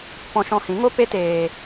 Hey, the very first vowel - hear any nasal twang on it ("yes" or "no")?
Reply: yes